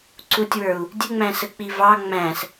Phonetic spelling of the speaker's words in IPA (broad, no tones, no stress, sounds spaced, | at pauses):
ǀ u tʲ w ə˞ u̯ | dʲ ə ŋ͡m æ̃ s ə k͡p i v ɑ ŋ͡m æ̃ s